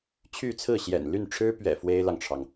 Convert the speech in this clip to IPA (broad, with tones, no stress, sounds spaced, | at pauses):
t͡ɕʰ y˥˧ t͡sʰ ɹ̩˥˩ ɕ j ɛ̰˨˩ n l y˥˩ n ʈ͡ʂʰ ɻ̩˥ p ɥ ɛ̰˨˩ f w e˥ ɪ̯ l ɑ˨ ŋ ʈ͡ʂʰ ɑ˩ ŋ